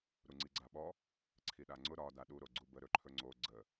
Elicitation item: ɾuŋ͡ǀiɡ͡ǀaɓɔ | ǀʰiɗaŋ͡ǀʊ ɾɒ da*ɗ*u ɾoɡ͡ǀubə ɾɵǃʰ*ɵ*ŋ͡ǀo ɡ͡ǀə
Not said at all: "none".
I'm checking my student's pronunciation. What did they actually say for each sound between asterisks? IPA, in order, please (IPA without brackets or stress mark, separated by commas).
ɗ, ɵ